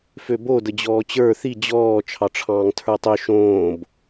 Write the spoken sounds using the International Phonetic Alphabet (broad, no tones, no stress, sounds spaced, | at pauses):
f ø b o d ə d͡ʑ ɔː t͡ɕ ə˞ θ i d͡ʑ ɔː t͡ʃʰ ɑ ʈ͡ʂʰ ɑ̃ː ŋ tʰ ə˞ tˤ ø ʃ õː b